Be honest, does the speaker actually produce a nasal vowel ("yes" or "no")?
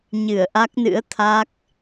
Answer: no